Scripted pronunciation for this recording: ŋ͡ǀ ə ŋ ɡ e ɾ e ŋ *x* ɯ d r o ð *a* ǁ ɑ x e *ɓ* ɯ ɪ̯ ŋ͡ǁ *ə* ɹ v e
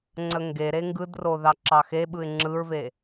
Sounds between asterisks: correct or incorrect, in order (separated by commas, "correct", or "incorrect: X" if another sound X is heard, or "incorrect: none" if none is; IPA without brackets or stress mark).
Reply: incorrect: ɡ, incorrect: ɑ, correct, incorrect: ɯ